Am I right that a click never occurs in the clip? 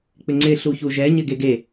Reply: no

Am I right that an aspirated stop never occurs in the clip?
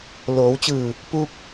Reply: yes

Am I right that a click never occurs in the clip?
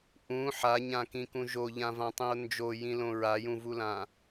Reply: yes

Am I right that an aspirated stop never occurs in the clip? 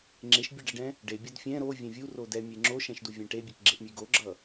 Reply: yes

